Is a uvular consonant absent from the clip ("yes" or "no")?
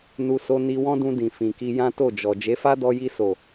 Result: yes